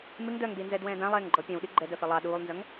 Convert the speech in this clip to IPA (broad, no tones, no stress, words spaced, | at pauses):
mɪŋ dœŋdinzɛdwɛ̃ːd ãlˠɛːŋɡ͡ǃɔ pʲɛ̃wɗi ɡ͡ǃɛdœfɛ lˠɑ ɗuːlˠnzœŋ